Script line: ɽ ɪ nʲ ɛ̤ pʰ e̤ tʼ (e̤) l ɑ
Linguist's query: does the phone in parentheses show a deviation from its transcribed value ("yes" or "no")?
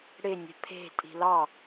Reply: yes